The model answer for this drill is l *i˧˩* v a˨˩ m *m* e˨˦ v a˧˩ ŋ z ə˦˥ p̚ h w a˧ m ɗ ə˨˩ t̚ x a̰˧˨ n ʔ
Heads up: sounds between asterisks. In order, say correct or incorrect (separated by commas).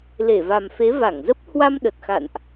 incorrect, incorrect